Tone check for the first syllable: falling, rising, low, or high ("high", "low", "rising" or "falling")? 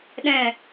low